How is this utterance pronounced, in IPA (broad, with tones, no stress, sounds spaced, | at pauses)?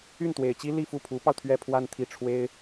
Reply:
y˥˩ n t̪ w e˨˩ ɪ̯ t͡ɕ i˥ l i˥˧ f u˥˩ pʰ u˧˥ p ɑ˧ ʊ̯ t̪ʰ ɥ ɛ˥˧ pʰ w a˥˧ n t̪ʰ i˥˩ ʈ͡ʂʰ w e˥ ɪ̯